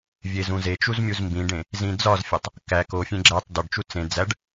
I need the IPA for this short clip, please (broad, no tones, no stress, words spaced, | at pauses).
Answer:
vʲezũzet͡ʃuz mʲuzmbĩɖẽ | zĩd͡zɒzfʲɒtˤ | kæ kofʲẽ ɡ͡ǁætˤ dɒɖt͡ʃu t͡sẽ d͡zæɖ